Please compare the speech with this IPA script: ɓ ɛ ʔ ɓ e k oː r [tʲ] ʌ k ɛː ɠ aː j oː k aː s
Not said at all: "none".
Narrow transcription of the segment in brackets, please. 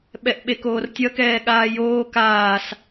tʲ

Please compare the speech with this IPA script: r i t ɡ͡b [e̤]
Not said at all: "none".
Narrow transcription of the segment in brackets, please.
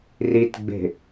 e̤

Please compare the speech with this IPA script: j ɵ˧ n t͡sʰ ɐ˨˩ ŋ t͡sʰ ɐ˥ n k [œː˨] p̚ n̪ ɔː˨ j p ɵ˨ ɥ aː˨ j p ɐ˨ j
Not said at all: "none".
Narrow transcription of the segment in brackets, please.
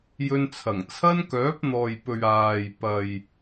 œː˨˥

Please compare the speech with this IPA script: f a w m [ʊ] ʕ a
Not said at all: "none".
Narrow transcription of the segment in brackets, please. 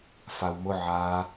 ʊ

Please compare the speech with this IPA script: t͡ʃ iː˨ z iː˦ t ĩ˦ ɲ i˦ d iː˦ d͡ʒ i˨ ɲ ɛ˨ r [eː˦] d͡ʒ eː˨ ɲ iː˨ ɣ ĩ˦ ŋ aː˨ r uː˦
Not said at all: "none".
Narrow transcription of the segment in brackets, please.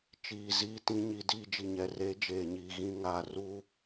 eː˦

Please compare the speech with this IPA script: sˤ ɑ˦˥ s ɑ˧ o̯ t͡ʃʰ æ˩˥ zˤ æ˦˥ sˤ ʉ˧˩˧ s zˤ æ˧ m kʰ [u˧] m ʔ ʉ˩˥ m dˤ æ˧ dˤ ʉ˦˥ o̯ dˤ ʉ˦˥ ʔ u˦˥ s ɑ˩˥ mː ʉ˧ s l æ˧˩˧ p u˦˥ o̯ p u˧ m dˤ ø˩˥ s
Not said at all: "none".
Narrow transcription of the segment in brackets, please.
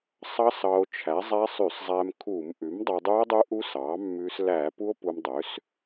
u˧˩˧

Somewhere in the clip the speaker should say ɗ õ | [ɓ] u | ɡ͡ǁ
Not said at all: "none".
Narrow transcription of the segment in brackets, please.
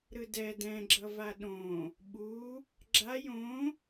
ɓ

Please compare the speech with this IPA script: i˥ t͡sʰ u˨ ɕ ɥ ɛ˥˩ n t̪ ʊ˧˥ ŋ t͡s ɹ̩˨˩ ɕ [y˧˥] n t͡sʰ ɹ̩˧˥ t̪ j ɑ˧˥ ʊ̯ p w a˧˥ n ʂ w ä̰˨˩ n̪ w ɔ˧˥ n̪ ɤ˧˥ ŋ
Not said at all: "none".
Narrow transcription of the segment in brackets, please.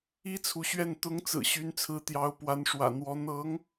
y˧˥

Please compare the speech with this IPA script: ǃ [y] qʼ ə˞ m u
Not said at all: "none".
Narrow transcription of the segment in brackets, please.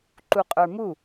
u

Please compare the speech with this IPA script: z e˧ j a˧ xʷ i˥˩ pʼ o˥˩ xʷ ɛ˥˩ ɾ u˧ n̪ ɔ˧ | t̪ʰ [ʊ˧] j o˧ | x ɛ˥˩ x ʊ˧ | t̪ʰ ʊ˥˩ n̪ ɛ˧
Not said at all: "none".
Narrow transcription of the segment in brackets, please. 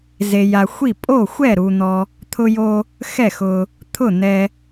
ʊ˧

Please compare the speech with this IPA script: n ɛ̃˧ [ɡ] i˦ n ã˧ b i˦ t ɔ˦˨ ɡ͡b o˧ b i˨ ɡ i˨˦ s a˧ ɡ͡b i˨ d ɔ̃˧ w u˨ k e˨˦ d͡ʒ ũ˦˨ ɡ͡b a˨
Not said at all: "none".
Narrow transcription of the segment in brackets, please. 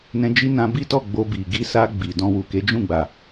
d͡ʒ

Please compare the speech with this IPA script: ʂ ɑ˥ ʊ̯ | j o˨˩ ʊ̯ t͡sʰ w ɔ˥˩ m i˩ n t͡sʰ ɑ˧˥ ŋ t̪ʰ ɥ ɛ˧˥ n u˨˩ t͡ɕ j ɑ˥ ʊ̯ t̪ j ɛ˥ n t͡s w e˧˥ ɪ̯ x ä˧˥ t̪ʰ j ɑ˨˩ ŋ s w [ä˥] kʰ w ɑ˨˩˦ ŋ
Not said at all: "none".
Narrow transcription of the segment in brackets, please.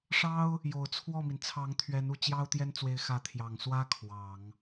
ä˥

